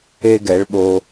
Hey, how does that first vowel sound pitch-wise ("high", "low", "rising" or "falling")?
high